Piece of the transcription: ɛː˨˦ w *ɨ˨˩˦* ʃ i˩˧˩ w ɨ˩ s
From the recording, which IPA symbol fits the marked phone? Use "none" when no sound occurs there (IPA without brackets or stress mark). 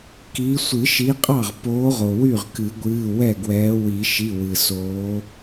i˨˩˦